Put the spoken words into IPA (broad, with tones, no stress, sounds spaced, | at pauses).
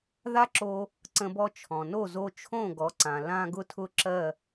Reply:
ð a˥ ǁ o˧ | ǀ ə̃˧ b ɔ˧ t͡ʃʰ ɔ̃˩ n o˥˩ z o˧ t͡ʃʰ õ˥˩ ɡ ɔ˩˥ ǀ ã˩ l ã˥ ɡ ʊ˥ tʰ ʊ˥ ǁ ɜ˥˩